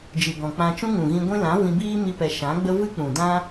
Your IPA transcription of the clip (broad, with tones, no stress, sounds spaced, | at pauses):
d͡ʒ ɨ˨ ɡ ɔ̃˨ k͡p ã˧ t͡ʃ ũ˦ ŋ ũ˨ ɣ ĩ˧ ɡʷ ĩ˦ l ã˨˦ v ĩ˧ b iː˦ m i˦ p ɛ˧ ʃ ã˨˦ ɡ͡b ə˦ v ɨ˦ k͡p ũ˨ d ã˦